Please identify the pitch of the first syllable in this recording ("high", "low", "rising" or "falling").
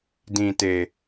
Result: low